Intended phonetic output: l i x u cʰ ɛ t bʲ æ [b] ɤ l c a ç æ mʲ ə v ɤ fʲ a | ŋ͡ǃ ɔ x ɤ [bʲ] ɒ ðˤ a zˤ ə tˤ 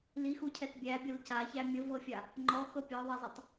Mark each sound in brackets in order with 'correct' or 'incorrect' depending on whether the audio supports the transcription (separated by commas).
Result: incorrect, incorrect